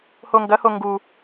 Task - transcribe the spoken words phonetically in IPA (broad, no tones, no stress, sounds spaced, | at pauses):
h o ŋ ɡ ɐ h o ŋ ɡ u